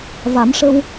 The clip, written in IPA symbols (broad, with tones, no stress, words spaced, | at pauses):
va˨˩˦mʂə˧w